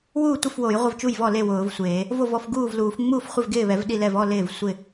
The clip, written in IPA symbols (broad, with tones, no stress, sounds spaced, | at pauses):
w uː˥˩ tʷ ɪ˥˩ f w o˨˩˦ j ʁʷ ɪ˥˩ v t͡ʃ u˥˩ j v ɔ˥˩ l e˥˩ w ʊː˨˩˦ v sʷ eː˨˩˦ | v o˥˩ v ɔ˥˩ f ɡ uː˥˩ v l uː˨˩˦ f ŋ͡m uː˥˩ f χʷ ɪ˥˩ v ɡ ɪː˥˩ β ɛ˨˩˦ v ɗ i˥˩ l ɛ˥˩ v ɔ˥˩ l ɪː˥˩ v sʷ ɪ˥˩